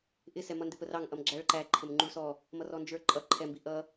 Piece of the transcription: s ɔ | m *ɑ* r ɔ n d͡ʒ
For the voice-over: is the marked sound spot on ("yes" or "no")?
no